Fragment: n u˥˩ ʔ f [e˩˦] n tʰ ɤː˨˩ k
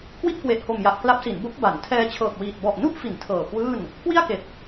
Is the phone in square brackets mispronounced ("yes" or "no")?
yes